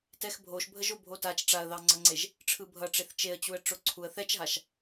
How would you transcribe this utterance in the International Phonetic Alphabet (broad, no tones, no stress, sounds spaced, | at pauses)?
t ɛ x bʱ o ʃ bʱ ə ʒ o bʱ o t a t͡ʃ ʈ͡ʂ a ə̯ ð ɑ ŋ͡ǀ ʌ ŋ͡ǀ e ʒ | ʈ͡ʂʰ ɯ bʱ ʌ ʈ͡ʂ e θ t͡ʃ e ə̯ t͡ɕ u ə̯ ʈ͡ʂ o ǀʰ u ə̯ θ ɛ t͡ʃ ɦ a ʃ